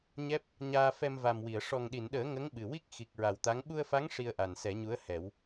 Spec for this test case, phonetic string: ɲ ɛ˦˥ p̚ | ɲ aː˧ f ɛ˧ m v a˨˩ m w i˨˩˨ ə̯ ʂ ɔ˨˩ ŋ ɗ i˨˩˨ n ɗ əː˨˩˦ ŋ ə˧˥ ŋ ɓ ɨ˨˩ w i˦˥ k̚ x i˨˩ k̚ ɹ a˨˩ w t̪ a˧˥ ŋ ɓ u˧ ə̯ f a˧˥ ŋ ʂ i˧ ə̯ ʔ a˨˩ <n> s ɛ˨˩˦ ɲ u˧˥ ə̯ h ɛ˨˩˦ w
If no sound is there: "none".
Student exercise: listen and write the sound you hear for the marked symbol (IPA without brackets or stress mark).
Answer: n